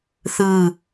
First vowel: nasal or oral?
oral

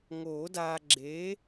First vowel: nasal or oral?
oral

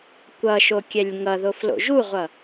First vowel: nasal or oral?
oral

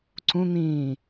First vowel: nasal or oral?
nasal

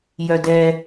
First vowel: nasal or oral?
oral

